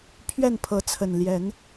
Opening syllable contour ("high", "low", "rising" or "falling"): falling